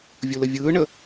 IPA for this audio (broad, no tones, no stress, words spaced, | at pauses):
vʲuləvʲɯːɳə